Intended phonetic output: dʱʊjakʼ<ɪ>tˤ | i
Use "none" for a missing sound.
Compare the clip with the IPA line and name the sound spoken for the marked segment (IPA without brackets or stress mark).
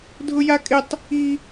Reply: ɪ